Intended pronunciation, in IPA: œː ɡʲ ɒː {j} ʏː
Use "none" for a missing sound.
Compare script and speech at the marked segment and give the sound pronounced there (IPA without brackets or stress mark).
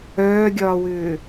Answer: w